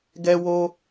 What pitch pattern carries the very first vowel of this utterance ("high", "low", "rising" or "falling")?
high